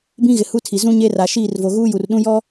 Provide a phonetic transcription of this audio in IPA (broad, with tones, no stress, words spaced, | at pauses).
bĩ˦ɣɪ˨hu˦tʰi˨ zũ˦ ɲe˦ra˨ ʃiː˦˨rvo˨ɣuː˦ ju˨rɗũ˦ jɔ˦